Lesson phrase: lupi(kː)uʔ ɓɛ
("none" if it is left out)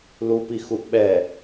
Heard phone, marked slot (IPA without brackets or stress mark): x